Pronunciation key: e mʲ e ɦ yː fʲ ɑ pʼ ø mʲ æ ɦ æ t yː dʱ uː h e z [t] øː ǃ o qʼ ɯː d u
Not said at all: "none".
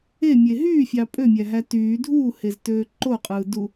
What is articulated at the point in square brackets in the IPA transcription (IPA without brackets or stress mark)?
t